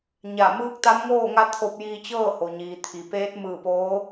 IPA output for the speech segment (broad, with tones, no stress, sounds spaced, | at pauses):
ɲ a˧˩ m ɯː˧˥ k̚ t̪ a˧˥ m ŋ oː˥˨ ŋ a˧˥ t̪ʰ o˧ p̚ j iː˧ t͡ɕ ɤː˥˨ h o˩ ɲ iː˩ t̪ʰ i˩ p eː˧˥ t̚ m ɯː˧˩ p oː˧˥